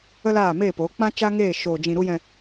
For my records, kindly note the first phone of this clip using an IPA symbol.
ə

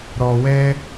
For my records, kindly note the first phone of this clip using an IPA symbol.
ɾ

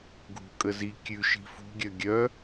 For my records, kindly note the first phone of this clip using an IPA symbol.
ɡʱ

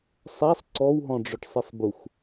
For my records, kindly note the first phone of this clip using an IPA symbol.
sˤ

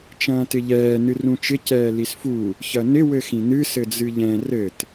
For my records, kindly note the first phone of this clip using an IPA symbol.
t͡ʃ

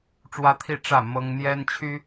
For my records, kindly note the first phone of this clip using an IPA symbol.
ʈ͡ʂ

